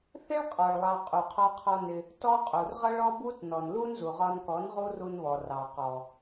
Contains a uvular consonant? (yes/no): yes